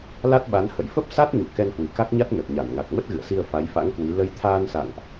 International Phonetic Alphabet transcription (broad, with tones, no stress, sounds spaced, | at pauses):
l a˦˥ t̚ ɓ a˨˦ n h ə̰˧˨ j f ə˦˥ p̚ s a˦˥ t̚ ɲ ṵ˧˨ k ɛ˧ n h w i˧˩ k a˦˥ k̚ ɲ a˦˥ t̚ n ə˨˩ t̚ ɲ a˧˩ n ŋ a˨˩ k̚ m ə˦˥ t̚ ɣ ɨ̰˧˨ ə̯ s i˧ ə̯ f a˨˦ j f a̰˧˥ ŋ k w i˨˦ l ə˨˦ j t̪ʰ aː˧ n s a̰˧˨ ŋ ʔ